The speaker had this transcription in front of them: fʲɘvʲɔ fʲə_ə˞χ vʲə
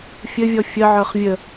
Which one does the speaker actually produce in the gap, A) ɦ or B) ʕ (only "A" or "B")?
B